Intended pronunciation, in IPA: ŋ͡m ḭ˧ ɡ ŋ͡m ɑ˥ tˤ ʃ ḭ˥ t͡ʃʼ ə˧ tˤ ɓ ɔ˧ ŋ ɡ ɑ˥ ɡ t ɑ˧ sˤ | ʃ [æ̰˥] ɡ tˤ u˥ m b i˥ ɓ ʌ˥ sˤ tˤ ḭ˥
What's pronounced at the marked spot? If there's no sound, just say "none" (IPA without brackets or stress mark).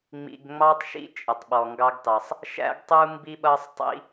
æ̰˥